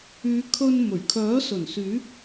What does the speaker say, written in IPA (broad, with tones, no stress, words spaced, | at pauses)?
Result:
yː˨˧kʰɵ˧n mɵ˨˩ɥ kʰœː˨˥sɵ˨˩n syː˨˥p̚